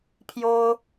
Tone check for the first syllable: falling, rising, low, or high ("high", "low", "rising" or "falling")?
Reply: high